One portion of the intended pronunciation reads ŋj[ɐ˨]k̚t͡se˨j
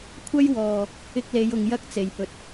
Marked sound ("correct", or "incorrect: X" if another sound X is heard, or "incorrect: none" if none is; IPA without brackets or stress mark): incorrect: ɐ˥